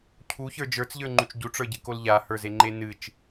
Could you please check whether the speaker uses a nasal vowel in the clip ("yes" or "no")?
no